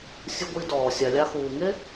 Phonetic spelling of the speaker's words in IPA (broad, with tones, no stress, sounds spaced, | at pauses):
sʲ ɯ˧ ɡʷ i˧ d ɔː˨ sʲ a˨ lʲ a˧ x uː˨ ŋ e˦